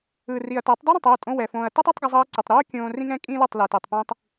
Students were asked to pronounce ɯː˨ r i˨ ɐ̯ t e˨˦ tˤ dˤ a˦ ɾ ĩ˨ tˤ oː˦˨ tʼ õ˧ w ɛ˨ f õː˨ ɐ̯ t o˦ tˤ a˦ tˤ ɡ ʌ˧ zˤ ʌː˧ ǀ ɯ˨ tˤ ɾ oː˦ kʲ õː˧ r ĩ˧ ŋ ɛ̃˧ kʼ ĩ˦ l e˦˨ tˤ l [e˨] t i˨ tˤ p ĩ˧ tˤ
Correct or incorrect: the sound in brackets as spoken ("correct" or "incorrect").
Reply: correct